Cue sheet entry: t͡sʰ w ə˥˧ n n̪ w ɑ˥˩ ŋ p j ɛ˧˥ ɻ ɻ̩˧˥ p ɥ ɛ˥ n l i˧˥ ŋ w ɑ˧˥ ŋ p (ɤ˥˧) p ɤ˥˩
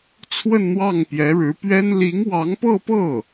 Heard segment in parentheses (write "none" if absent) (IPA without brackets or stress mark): ɤ˥˧